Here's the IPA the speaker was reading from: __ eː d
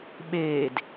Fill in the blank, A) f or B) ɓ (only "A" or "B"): B